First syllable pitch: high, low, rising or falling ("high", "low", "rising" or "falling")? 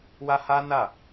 high